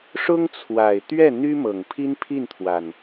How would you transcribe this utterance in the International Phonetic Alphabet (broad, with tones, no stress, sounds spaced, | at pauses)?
ʂ ʊ˥ ŋ t͡sʰ w a˨˩ ɪ̯ t̪ ɥ ɛ˥˩ n̪ y˥ m ɤ˨˩ ŋ pʰ i˥ n pʰ i˥˩ n t̪ʰ w a˩ n